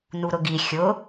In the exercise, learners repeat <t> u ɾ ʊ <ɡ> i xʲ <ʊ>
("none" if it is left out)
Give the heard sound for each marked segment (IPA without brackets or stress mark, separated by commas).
n, ɡ, ʊ